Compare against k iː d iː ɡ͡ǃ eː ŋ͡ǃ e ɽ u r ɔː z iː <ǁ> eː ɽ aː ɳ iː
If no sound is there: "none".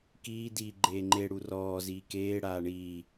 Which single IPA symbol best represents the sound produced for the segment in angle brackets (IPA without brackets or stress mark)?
k